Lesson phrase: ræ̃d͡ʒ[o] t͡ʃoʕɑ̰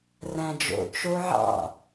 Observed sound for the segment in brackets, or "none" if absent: o̰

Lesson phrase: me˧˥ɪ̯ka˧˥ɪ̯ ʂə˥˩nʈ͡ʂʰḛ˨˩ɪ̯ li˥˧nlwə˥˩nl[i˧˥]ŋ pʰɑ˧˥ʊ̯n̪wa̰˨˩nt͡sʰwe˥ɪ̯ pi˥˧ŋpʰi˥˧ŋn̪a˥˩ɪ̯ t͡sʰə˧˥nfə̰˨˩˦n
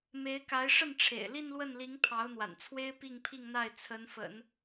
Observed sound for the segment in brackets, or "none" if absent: i˧˥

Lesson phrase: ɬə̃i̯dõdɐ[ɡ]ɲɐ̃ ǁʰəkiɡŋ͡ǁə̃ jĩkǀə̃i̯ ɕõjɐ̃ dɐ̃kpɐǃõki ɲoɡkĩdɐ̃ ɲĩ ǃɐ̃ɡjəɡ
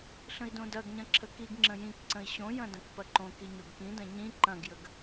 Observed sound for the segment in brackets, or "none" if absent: ɡ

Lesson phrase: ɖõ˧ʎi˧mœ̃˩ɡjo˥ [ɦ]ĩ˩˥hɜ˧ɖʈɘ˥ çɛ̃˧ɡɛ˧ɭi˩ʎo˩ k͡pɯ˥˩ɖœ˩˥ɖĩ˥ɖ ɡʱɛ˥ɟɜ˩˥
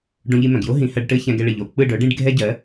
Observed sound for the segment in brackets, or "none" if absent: ɦ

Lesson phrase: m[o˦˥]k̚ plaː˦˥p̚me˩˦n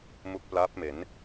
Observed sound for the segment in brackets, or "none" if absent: u˦˥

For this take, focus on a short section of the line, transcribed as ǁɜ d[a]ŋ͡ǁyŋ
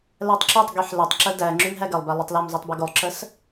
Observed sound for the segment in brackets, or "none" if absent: æ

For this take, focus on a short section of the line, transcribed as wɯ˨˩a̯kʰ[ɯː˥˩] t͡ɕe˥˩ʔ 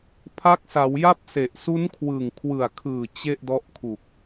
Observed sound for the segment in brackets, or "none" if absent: ɯː˨˩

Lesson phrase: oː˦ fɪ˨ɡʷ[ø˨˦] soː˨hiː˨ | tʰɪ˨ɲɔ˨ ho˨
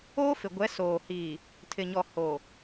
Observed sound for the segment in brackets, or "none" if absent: ɛ˨˦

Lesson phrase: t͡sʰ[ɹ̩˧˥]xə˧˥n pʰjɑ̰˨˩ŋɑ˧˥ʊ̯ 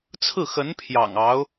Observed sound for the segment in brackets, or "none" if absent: ɹ̩˥˩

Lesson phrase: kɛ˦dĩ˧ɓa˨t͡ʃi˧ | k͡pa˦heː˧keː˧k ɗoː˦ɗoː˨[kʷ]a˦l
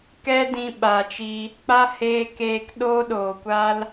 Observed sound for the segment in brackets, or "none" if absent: kʷ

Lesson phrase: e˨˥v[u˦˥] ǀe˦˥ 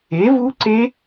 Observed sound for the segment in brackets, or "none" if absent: u˦˥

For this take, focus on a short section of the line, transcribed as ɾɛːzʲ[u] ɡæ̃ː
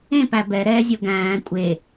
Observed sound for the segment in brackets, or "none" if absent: o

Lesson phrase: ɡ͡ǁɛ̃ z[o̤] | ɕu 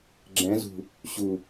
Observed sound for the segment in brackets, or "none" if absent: ṳ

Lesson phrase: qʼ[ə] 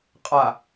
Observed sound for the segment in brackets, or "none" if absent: a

